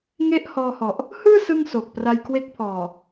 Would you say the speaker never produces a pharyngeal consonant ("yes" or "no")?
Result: yes